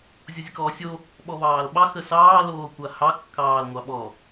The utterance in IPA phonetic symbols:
zʲ o zʲ ə k ɔː sʲ o | ɓ ɔ β ɑː l ɓ ɑ x ə s ɑː l oː kʷ a h ɑ kː ɑː l ŋʷ ɑ ɓ ɔ

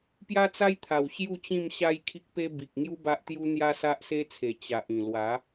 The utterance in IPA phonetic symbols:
p j a˦ t͡s a˦ j t̪ʰ a˨˩ w ɕ j u˥˧ t͡ɕ ĩ˥˧ m ɕ a˦ j kʰ i˦ k̚ p e˦ b i˨ k̚ ŋ j u˦ b a˦ ʔ t̪ j u˦ n̪ j a˦ s a˦ ʔ s e˦ t͡sʰ e˨˩ t͡ɕ a˨ ʔ ĩ˨˩ l w a˨˦

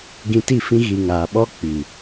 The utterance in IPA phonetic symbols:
ɡ ĩ˧ t i˦˨ f ĩ˦ ɣ i˧ ŋ aː˨ ɓ ɔ˧ k͡p i˨

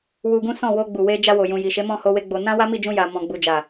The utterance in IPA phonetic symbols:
w u˧ ɡ ũ˦ s ɔ̃˦˨ w o˧ ɡ͡b u˨ w e˧ d͡ʒ a˧ w o˨ j ũ˨ j i˨ ʃ e˨˦ m ɔ̃˦˨ h o˧ w e˧ ɡ͡b o˨ n ã˧ w a˦ m i˦˨ d͡ʒ ũ˧ j a˨ m ɔ̃˨ ɡ͡b u˨ d͡ʒ a˨

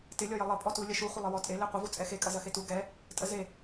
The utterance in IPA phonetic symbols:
t ɪ lʲ ɔ j ə lˠ ə pʼ ɔ t u lʲ ɐ ʃ u χʷ ɪ lˠ ɪ w ɔ tʼ e l e qʷ ə v u t͡sʼ ɛ x e kʼ ɐ z ɐ x e t u ɡ ɛ | tʼ ə z e

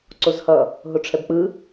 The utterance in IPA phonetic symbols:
ǀ o z h ʌ | ɦ o ʈ͡ʂʰ ɛ b k͡p ɯ

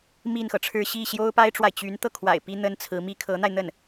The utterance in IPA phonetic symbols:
m i˥˩ n x ɤ˩ ʈ͡ʂʰ ɻ̩˥˧ ɕ i˥˩ ɕ j o˥ ʊ̯ p a˥ ɪ̯ ʈ͡ʂ w a˨ ɪ̯ t͡ɕ y˧˥ n t̪ ɤ˥˩ kʰ w a̰˨˩ ɪ̯ p i˥ n̪ ə˥ n t͡sʰ ɹ̩˧˥ m i˥ kʰ ɤ˧˥ n̪ a˧ ɪ̯ n̪ ə˥˩ n

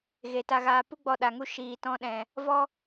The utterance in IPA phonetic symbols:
ɣ e˨ t a˧ ɣ aː˧ p u˦ ɡ͡b ɔ˧ ɗ a˨ ŋ u˧ ʃ iː˨ t ɔ̃˧ ɗ ɛ̃˨ | v ɔ˦

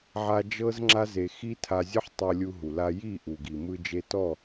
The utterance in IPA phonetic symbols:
ʕ a˧ d͡ʒ ɤ˦ z ŋ͡ǁ a˦ z e˨ x i˦ tʰ a˧ zʲ ɔ˦ ħ tˤ ɤ˧ lʲ u˧ ɦ u˨ l a˧ j i˦˨ ʔ u˨ ɡ i˨ m ɯ˧ d͡ʒ e˧ t ɔ˦˨

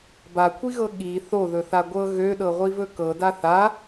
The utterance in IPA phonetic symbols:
b a kʷʰ i ɣ ɤ ɠ i θ o ð ɵ θ a ɡʷ ɤ ɣ ø ɗ ɤ ʁʷ i v ɵ k ɤ d a θ a

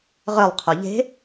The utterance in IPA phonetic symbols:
ʁ œ lˠ qʰ o ʎ e̤

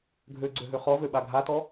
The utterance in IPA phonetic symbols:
ɡʱ ø ɡ͡ǀ ø ɦ ø χ ɔ v ø ɓ a ɡʱ a t ɔ

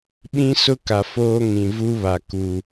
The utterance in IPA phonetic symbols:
ɓ ĩ˦ s ʊ˦ k a˨ f oː˦ ŋ ĩ˨ v u˦ β a˨ k u˨

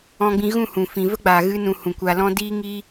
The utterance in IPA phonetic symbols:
ɔ̃˧ ɡ͡b ĩ˧ ɣ ũ˦˨ h ũ˨ f ĩ˨ v ə˦ ɡ͡b aː˨ ɣ ɨ˧ n ũ˨ h ũ˨ kʷ a˧ l ɔ̃˦ d iː˦ ŋ iː˦

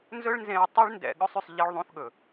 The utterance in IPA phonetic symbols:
n z ɵ˥ ɭ n z ẽ˧ ɹ tˤ ʉ˥ ɭ n d ɛ̰˧ ɠ ɵ˥ sˤ y˧ sˤ ʎ i˧ ɭ ðˤ ũ˧ θ ɠ ɵ˩

